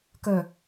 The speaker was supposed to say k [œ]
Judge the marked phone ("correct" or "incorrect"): correct